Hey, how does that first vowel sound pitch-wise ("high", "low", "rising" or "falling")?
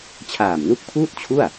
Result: low